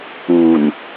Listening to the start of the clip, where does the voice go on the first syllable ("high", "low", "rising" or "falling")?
low